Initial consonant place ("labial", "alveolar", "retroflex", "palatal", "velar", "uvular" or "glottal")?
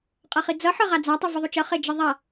uvular